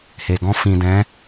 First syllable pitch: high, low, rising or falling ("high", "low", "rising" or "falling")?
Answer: low